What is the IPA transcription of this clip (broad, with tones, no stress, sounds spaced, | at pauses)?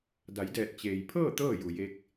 d a˩˧ j d ɛː˧˩ t̚ t͡ɕ eː˩ j pʰ ɤː˥˨ t̪ ɤː˥˨ j u˩ j e˧ k̚